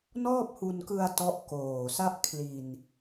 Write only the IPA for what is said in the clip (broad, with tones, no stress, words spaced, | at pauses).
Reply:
nɔː˥˩p̚hu˧nkɯ˧a̯ tɔ˦˥ʔkoː˨˩ sa˦˥ʔkʰli˨˩n